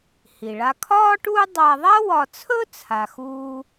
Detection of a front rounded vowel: absent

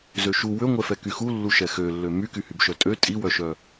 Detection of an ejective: present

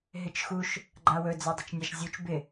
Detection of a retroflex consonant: absent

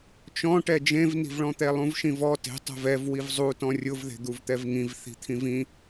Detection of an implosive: absent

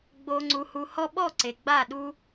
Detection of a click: present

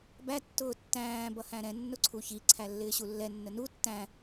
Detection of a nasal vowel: present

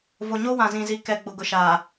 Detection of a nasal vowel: present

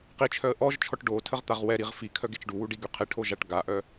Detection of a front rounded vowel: present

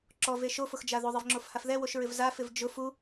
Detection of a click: present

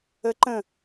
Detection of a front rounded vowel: absent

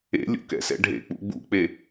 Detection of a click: absent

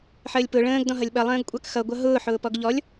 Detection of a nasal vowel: present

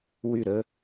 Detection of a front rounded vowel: present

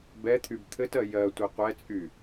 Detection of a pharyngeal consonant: absent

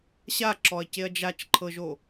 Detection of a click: present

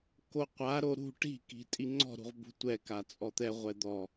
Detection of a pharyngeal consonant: absent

